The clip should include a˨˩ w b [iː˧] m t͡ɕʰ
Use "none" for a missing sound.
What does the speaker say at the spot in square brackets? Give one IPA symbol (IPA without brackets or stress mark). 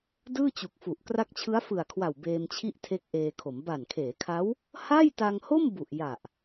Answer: eː˧